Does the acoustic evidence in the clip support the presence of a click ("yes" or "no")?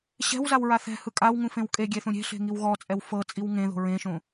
no